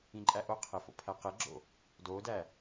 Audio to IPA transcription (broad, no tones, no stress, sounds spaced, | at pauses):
ĩ ǃʼ æ ʔ o qʰ e f o̰ pʰ æ q e ɡ͡ǁ o̰ | d o d æ